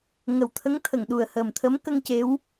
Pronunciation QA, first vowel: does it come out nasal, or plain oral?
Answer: oral